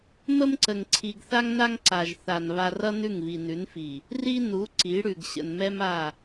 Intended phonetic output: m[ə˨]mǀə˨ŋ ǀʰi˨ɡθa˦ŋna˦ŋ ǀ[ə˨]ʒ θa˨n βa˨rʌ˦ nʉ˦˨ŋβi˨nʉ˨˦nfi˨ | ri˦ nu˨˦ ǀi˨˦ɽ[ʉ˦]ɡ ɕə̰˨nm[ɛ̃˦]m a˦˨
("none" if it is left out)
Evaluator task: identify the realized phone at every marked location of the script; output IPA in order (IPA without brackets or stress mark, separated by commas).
ə˦, a˨, ʉ˨, ɛ˦